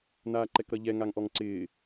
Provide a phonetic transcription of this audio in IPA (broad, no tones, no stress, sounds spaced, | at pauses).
n aː ǃ ɛ k ɾ ʌ ʎ ɛ ŋ a ŋ ʔ ɔ ŋ ǀ ɪː